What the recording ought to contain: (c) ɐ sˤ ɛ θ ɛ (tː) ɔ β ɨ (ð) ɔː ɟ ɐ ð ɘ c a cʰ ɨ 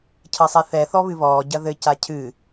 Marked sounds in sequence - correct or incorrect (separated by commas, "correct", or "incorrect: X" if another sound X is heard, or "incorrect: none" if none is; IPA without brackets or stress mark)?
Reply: incorrect: cʰ, incorrect: θ, incorrect: β